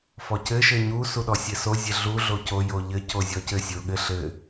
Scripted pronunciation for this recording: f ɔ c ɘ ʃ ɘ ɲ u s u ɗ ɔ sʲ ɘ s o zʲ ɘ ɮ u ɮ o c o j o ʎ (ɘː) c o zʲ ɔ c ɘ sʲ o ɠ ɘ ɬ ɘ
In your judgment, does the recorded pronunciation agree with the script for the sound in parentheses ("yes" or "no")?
no